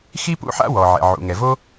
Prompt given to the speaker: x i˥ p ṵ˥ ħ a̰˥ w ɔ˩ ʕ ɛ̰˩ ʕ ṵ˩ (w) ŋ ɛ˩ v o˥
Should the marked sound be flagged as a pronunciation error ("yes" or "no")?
yes